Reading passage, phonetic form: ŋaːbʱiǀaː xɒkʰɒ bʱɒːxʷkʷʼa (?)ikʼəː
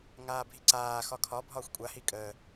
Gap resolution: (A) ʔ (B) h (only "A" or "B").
B